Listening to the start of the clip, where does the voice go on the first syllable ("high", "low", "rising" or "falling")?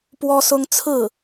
high